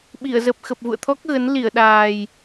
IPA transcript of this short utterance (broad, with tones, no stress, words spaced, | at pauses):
ɓi˧˩ə̯ zə˨˩p̚xə˨˩p̚vṵ˧˨ə̯t̪ʰɔ˦˥k̚ ɣə˨˦nli˧˩ə̯ɗaː˨˩j